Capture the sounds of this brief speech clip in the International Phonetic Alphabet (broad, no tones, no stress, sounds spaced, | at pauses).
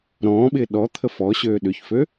ɾ ɔ̃ː ɓ ɪː ɗ ɔ t̪ʰ ə f ɔ ɕ øː ɗ ʏ ç f ø